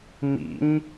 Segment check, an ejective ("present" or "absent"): absent